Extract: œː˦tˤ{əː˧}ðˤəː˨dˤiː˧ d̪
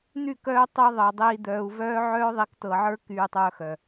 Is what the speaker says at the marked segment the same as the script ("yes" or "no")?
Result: no